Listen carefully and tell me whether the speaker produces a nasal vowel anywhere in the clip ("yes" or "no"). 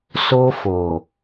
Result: no